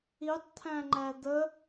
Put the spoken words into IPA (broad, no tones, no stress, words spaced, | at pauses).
itˤt̪ʰæ̃ŋ͡ǃæ d̪ə